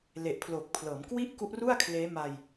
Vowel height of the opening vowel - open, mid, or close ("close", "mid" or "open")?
mid